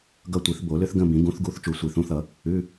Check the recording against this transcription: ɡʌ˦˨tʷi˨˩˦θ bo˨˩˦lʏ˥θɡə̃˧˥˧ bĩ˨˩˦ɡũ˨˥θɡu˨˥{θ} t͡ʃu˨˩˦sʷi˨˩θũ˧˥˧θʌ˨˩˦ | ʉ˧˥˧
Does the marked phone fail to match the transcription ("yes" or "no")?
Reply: no